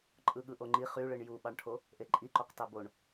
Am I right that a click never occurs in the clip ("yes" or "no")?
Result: no